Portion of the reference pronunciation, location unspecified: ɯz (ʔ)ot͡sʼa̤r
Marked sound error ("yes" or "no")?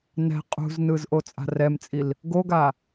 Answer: no